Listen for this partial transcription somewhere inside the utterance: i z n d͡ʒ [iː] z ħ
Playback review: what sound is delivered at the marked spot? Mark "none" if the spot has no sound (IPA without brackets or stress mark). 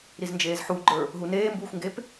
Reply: eː